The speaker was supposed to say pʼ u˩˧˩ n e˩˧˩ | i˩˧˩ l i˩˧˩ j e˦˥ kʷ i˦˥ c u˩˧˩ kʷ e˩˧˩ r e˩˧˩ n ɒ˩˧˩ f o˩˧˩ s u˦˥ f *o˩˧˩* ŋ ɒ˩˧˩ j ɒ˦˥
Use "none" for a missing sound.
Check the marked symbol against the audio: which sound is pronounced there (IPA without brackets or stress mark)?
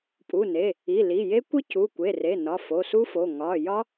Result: o˩˧˩